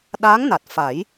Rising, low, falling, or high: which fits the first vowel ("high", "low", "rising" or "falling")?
rising